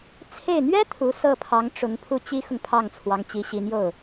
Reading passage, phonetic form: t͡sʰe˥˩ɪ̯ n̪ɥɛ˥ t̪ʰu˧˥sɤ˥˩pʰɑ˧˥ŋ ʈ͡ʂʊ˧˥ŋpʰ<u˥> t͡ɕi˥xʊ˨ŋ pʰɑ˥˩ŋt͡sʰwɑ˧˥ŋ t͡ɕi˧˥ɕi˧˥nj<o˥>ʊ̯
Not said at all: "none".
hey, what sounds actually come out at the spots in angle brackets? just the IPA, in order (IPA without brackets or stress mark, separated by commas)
u˥˩, o˥˩